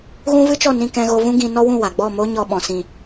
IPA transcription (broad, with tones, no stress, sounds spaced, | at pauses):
ɣ ũ˦ v ɨ˦ t͡ʃ ɔ˦˨ n ĩ˧ k ɛ̃˧ ɣ o˧ v ũ˦ ɡ ĩ˧ n ɔ˦ w ũ˦˨ w a˨ ɡ͡b ɔ˦˨ m o˦ ɲ ɔ˧ ɓ ɔ̃˨ s ĩ˨